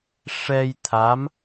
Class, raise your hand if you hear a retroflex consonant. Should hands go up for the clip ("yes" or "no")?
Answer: yes